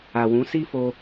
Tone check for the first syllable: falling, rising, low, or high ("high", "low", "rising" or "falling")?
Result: low